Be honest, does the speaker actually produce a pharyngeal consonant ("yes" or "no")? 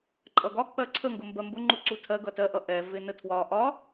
no